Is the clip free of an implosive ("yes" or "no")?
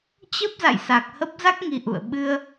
no